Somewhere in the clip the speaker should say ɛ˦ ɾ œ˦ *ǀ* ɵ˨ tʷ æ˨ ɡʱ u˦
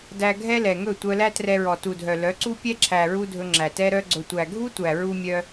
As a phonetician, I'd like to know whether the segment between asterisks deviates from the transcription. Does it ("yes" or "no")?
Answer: yes